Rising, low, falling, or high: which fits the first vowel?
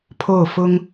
falling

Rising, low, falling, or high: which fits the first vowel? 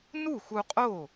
falling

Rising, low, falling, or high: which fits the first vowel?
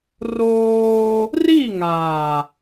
high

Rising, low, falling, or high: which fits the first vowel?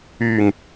low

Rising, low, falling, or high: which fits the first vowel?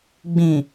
low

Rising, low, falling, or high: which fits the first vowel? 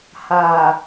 low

